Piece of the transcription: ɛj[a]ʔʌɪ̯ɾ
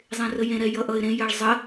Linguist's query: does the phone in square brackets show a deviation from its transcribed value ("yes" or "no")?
yes